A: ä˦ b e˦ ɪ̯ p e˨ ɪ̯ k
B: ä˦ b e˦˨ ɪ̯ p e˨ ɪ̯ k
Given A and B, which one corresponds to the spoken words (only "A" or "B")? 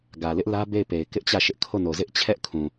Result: B